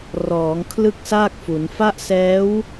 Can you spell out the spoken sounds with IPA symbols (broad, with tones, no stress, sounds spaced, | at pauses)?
r ɔː˩˦ ŋ kʰ l ɯ˥˩ k̚ s aː˥˩ k̚ f u˩˦ n f a˦˥ ʔ s ɛː˦˥ w